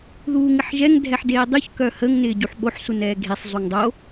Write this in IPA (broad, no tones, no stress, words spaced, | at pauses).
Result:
ðuːŋɪħʒɛŋ dʱɛħdeːdˤyç kœhəŋ nɪːɟuħɓoħ sunɛːɡʱesˤ zˤuŋdˤo